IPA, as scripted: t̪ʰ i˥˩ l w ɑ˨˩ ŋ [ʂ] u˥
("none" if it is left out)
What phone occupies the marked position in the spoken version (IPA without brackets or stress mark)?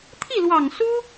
s